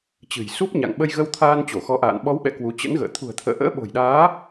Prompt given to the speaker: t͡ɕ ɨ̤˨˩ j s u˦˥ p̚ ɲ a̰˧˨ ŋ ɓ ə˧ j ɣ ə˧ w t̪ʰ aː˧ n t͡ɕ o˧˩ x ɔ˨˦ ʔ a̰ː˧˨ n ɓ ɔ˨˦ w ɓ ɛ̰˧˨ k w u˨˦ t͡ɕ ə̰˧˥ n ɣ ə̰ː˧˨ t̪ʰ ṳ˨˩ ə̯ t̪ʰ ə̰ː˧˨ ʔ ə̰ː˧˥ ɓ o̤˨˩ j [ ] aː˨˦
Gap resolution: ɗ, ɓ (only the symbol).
ɗ